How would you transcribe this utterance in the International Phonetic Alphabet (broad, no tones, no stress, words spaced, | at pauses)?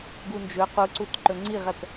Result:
ɡund͡ʒɵ quǀut ǃɵŋ͡ǀiʁɛp